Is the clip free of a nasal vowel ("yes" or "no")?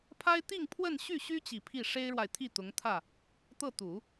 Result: yes